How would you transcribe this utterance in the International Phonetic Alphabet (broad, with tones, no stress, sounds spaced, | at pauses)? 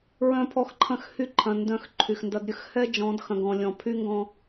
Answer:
ɹ œ̃˦ pʰ ɔ˦ x ǃʰ ɐ̃˦ x h y˦ ǃʰ ɐ̃˨ n d œ̃˨ x ǃʰ y˨ x n d ɐ˦ d ɾʲ ə˦ x h ɛ˦ d͡ʒ ɔ̃˨˦ d x ɐ̃˨ ɡ ɔ̃˨ lʲ ɔ̃˨ pʰ y˦ ŋ ɡ ɔ̃˦